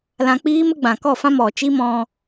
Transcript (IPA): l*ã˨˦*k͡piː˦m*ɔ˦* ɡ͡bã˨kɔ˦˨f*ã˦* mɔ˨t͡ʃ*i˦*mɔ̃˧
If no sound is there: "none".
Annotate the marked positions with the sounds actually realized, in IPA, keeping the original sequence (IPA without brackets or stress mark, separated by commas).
ã˧, ə˦, ã˦, i˦